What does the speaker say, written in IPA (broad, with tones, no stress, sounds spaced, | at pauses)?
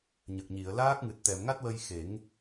ɲ ə˨˩ k̚ ɲ i˨˩˨ ə̯ l aː˦˥ k̚ ŋ ɨ˨˩ t̚ t̪ ɛ˨˩˨ m ŋ a˦˥ t̚ w ə˧ j x e˨˩˦ ŋ